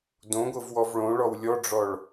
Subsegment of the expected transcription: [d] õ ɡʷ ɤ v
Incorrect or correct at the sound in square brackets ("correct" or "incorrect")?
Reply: correct